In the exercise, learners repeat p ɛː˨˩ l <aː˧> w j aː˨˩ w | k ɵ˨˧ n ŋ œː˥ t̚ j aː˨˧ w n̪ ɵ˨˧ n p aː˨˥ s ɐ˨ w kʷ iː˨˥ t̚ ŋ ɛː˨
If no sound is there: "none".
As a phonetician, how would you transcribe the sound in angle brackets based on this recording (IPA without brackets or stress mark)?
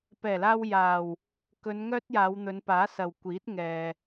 aː˧